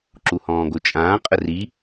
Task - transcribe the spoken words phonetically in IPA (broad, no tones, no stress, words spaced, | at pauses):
ǁuhɔ̃ːɡot͡ʃʼãː qʼəri